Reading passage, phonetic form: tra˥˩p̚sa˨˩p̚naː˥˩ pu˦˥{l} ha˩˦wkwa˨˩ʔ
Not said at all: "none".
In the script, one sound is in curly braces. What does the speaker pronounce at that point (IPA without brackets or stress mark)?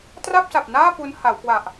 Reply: n